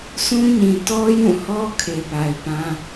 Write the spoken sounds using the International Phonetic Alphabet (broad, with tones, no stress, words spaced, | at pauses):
sʰũ˦ɲĩ˨ tɔ˦ jũ˦˨hɔ˦ kʰe˨pa˨ɪ̯pã˦